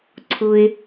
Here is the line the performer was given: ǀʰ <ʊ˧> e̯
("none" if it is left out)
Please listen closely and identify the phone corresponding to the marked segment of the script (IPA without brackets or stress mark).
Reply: ʊ˧